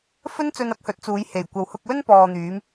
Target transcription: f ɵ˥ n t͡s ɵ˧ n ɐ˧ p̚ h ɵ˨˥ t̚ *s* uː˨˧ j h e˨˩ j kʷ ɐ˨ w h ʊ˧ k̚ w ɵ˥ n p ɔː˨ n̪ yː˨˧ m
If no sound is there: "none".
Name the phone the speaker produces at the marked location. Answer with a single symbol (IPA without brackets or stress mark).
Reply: t͡s